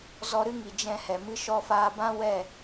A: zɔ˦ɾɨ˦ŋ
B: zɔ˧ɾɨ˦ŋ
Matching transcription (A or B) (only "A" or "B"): B